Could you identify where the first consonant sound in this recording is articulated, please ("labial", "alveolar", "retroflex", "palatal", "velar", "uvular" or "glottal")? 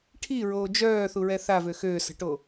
retroflex